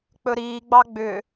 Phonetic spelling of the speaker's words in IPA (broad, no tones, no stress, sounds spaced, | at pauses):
k͡p ɵ ɾ iː ɡ͡b ɑ ɡ͡b ʏ